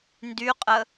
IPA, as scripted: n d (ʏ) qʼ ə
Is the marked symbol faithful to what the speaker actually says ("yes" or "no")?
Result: no